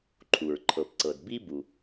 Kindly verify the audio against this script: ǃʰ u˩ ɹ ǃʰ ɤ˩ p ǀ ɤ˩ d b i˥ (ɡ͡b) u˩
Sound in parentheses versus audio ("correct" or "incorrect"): incorrect